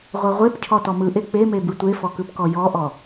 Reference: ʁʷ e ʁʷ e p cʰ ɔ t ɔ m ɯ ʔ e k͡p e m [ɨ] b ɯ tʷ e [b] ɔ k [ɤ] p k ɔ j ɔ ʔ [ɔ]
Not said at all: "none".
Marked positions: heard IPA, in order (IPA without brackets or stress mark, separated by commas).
e, f, ɯ, ɔ